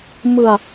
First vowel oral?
yes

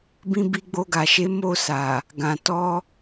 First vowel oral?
no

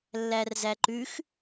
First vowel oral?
yes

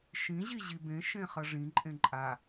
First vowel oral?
no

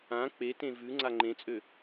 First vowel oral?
no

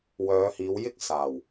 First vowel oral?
yes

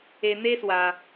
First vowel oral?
yes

